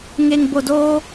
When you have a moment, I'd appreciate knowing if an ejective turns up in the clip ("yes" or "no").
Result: no